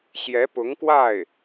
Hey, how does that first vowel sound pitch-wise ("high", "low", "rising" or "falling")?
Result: rising